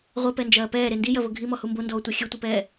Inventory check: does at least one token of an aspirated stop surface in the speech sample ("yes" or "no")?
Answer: no